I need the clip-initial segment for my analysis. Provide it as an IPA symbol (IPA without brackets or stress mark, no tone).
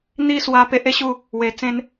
n̪